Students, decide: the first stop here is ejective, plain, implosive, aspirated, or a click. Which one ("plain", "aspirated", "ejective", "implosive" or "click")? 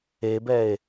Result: plain